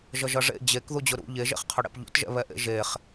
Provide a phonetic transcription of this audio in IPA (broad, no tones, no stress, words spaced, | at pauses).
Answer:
ʒʌʒʌʐḛ d͡ʑek ðud͡ʑʊɾṵ ʎeʒḛχqʰʊ ɽḛpʎṵtʒɛ̰βɛ ʔḛʒeχ